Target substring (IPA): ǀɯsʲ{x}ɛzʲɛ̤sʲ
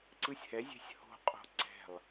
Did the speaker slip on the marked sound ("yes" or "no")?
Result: yes